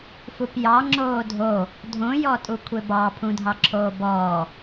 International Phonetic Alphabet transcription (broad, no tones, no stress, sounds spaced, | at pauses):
f u p j ɑ ŋ͡ǁ oː dʱ o | dʱ õ j ɔ tʼ u kʷʰ e b ɑ pʰ ũ dʱ ɑ ǁʰ oː b ɔː